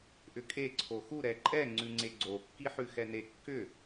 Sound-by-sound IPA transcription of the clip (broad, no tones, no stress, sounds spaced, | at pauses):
ʔ ʏ kʼ e ǀʰ o x u ɾ ɛ ǃʼ ɛ ŋ͡ǀ ʉ ŋ͡ǀ e ɡ͡ǀ o kː i ħ ʉ x ɛ n e kː ʏ